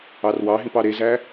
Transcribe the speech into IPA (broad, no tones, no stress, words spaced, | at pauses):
ɑrwɑɦĩp ɑɾezæ